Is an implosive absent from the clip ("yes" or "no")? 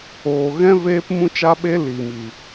no